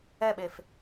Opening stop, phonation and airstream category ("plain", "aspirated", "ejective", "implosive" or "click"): implosive